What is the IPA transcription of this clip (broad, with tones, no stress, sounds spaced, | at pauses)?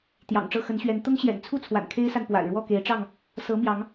t̪ j ɑ̰˨˩ ŋ ʈ͡ʂ ɤ˥˨ x ə˨˦ n ɕ ɥ ɛ˨˦ n t̪ ʊ˦ ŋ ɕ j ɛ̰˨˩ n t͡sʰ u˥˨ t͡sʰ w a̰˨˩ n kʰ e˦ ɪ̯ s a˨ n p w a̰˨˩ ɪ̯ ɻ w ɔ˥˨ k e˨˦ ɪ̯ ʈ͡ʂ ɑ˥˨ ŋ | s ɤ˨˦ m j ɑ˨˦ ŋ